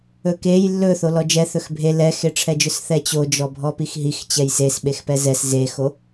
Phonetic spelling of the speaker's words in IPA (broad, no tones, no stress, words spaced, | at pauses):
ɵkej lːɵ θolɔd͡ʒɛ θɵxbʱe lɛxeʈ͡ʂʰɛd͡ʒɵs θɛt͡ɕod͡ʒɔ bʱɔpixɦix t͡ɕɛjses ɓexpɛzɛs zexo